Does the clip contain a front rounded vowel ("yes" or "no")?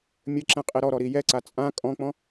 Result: no